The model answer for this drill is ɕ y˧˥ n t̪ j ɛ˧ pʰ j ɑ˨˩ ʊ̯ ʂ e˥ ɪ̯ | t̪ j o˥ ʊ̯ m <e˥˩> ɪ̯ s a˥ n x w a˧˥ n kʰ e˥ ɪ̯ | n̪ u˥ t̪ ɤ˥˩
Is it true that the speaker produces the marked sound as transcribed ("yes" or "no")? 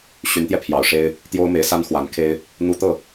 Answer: no